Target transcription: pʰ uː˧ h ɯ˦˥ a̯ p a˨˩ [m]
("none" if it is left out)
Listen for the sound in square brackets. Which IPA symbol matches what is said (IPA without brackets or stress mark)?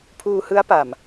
m